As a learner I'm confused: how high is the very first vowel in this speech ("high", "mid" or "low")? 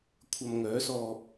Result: low